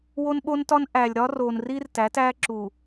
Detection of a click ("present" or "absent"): present